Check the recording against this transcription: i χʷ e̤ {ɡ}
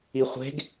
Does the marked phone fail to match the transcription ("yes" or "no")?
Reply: no